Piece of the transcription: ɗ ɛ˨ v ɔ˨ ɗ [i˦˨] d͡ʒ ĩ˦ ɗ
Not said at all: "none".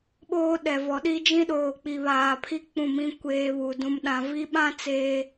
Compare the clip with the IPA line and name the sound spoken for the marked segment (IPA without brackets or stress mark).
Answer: i˦